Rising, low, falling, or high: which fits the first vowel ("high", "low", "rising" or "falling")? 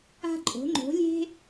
high